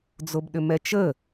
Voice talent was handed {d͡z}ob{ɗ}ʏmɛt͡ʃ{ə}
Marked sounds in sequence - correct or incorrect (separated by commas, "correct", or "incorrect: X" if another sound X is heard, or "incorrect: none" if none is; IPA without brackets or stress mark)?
correct, correct, correct